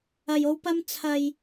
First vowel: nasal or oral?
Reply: oral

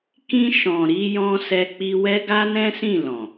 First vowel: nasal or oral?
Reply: nasal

